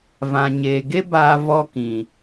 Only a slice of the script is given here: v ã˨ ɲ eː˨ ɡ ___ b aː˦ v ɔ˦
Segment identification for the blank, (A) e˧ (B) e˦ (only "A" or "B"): B